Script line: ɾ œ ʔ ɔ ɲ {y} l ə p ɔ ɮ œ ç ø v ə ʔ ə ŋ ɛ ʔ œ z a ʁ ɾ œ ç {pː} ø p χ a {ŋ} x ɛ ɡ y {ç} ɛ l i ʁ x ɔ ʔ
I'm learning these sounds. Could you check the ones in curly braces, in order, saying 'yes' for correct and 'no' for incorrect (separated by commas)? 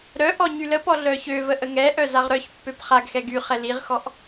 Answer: yes, yes, no, no